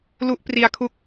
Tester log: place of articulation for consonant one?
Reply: alveolar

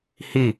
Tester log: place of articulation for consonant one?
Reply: glottal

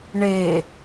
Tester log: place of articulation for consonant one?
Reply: retroflex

